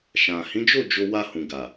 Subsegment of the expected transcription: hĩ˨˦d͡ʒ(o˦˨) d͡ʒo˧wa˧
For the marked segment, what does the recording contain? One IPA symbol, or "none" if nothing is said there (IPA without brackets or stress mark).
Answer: o˦˨